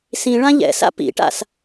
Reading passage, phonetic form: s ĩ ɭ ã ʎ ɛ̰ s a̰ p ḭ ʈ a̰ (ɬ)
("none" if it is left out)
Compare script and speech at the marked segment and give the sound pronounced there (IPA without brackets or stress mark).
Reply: s